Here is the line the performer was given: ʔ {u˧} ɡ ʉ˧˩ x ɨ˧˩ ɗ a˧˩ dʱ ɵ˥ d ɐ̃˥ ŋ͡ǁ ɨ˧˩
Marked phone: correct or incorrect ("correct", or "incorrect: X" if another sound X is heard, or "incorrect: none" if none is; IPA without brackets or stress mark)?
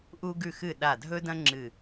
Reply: correct